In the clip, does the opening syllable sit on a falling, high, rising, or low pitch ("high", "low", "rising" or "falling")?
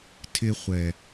high